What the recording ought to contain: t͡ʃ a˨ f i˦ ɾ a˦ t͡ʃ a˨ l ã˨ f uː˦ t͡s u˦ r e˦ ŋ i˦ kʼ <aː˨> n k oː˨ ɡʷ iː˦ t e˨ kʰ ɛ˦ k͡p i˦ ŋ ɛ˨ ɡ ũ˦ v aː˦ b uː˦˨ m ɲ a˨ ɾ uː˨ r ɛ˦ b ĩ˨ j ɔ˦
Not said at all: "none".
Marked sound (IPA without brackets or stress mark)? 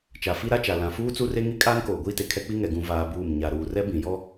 aː˦